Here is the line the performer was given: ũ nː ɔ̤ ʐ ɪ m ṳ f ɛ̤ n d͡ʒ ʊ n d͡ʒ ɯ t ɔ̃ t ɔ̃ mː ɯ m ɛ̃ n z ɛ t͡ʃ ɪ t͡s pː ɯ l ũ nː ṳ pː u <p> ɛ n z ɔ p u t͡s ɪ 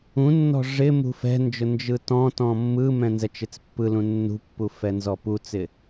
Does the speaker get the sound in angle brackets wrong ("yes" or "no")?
yes